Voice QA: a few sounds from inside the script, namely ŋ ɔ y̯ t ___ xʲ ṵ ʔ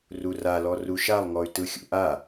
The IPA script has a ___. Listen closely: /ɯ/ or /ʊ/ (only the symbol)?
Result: ɯ